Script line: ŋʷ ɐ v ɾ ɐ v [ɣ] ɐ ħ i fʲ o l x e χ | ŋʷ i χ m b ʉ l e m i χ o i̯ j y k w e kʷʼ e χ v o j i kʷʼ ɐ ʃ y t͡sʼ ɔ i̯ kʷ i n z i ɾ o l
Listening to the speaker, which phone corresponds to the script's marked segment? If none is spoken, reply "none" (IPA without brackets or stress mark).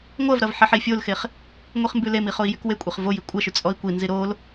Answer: ħ